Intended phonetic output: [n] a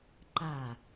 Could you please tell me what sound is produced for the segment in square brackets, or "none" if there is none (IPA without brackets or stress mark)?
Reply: ǃ